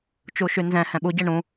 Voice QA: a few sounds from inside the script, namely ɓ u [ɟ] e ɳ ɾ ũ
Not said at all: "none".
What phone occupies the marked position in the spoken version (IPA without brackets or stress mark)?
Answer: ɟ